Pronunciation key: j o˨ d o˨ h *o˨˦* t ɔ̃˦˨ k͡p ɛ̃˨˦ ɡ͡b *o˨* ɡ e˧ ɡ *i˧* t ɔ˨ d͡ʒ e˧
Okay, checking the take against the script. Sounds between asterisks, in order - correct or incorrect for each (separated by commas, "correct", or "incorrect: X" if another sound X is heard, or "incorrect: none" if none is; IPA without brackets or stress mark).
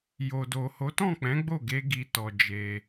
correct, incorrect: o˦˨, incorrect: i˨